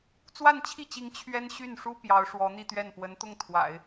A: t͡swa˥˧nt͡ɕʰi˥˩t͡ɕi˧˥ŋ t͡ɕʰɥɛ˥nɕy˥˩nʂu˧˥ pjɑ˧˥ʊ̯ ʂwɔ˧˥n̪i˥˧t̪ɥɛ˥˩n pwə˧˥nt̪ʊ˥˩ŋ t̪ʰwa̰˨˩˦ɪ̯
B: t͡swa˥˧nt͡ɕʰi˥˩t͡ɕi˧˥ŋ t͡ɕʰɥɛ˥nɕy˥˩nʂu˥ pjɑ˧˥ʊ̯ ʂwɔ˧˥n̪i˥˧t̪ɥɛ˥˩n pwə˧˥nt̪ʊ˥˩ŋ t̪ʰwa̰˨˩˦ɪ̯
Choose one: B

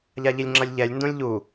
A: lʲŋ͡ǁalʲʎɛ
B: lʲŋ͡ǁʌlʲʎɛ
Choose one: B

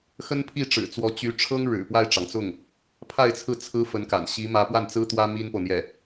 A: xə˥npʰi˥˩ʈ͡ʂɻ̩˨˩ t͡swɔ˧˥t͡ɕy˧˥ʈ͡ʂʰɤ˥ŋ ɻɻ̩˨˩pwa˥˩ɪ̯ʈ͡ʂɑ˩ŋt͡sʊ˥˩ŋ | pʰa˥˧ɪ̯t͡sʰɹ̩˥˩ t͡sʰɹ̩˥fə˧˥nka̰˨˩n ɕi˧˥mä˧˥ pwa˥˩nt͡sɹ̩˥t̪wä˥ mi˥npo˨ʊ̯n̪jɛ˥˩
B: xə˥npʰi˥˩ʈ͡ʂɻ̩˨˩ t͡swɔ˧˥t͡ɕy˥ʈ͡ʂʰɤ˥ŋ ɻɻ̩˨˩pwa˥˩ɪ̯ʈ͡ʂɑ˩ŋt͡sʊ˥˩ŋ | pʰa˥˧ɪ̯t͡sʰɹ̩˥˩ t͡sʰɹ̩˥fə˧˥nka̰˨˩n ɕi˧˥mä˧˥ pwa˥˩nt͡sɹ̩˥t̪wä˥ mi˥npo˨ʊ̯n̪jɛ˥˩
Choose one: A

